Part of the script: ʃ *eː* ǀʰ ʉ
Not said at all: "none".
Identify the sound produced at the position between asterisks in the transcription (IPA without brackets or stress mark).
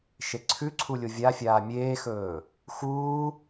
e